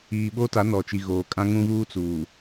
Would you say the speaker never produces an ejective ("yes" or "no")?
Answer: no